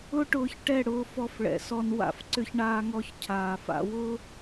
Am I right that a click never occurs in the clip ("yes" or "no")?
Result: no